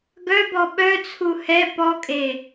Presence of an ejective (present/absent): present